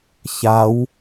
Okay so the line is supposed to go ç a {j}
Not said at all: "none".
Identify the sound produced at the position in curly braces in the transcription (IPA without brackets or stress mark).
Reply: w